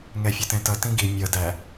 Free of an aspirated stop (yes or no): yes